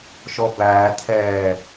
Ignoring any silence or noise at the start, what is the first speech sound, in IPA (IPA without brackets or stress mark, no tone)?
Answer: ʃ